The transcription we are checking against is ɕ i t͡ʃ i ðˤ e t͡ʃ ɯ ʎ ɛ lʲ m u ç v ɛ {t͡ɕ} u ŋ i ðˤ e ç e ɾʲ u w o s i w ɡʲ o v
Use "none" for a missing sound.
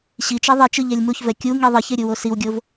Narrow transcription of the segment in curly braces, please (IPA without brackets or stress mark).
kʲ